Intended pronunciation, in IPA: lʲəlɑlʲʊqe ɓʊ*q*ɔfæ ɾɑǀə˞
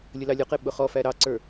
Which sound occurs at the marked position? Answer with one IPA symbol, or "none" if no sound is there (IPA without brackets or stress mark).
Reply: χ